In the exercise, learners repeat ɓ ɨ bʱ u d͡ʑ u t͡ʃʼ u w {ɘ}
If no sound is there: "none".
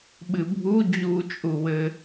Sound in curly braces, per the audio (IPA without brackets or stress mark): ɘ